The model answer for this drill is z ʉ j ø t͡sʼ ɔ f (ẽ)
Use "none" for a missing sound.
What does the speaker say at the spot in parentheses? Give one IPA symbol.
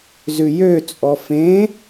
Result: ẽ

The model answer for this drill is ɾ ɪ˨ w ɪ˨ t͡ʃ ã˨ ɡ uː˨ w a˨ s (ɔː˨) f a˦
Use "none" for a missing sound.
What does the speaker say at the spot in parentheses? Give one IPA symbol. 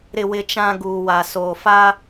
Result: oː˨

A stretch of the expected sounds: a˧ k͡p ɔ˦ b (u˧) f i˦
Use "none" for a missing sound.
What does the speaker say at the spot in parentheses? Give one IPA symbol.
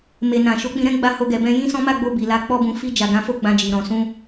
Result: ũ˧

